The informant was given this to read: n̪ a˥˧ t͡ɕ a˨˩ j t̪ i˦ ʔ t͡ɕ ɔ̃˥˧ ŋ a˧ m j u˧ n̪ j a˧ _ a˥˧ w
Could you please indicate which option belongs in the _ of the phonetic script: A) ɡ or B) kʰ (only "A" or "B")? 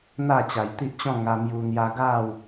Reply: A